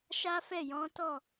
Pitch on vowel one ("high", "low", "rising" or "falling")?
high